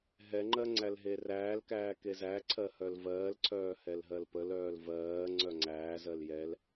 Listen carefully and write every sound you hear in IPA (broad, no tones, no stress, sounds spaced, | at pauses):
ɦ ɛ ŋ͡ǃ ɜ ŋ͡ǀ æ l ɦ e r æː l k æː k e z æ ǀʰ ɜ h œ l v ɜː l ǀʰ œː h ɛ l ɦ ɜ l p ə l œː l v ɜː ŋ͡ǀ œ ŋ͡ǀ æː z ɜ l j ɛ l